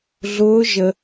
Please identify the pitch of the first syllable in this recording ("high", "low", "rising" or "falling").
rising